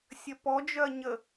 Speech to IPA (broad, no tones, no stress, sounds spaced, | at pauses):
sʲ ɐ p ɔ d͡ʒ œ ɐ̯ ɲ ə